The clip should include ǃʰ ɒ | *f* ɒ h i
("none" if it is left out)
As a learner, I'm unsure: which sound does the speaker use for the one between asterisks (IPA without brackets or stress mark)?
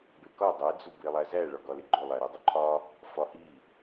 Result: f